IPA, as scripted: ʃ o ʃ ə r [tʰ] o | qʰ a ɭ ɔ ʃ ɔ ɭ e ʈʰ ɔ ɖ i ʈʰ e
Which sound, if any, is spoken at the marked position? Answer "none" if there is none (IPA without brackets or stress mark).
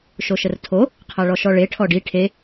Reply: tʰ